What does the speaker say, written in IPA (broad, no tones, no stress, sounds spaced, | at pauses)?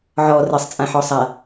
ʕ ɔ r ɘ sˤ t͡sʼ ã ħ ɔ sˤ a